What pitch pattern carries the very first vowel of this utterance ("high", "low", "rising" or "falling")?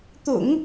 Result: low